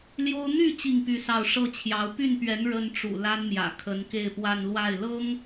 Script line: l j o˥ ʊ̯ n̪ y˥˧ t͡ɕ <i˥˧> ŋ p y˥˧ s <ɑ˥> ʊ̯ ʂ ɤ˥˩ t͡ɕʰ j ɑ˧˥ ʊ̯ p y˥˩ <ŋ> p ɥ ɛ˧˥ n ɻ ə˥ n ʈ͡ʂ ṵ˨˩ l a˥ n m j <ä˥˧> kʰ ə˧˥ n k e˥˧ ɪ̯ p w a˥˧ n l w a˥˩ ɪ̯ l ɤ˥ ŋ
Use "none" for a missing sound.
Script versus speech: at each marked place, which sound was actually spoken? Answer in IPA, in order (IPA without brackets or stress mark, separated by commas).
i˥˧, ɑ˥˧, n, ä̰˨˩